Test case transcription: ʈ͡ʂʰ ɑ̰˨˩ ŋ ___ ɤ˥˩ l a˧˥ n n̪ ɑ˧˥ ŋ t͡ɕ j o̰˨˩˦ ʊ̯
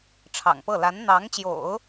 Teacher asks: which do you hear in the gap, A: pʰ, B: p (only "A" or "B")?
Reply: B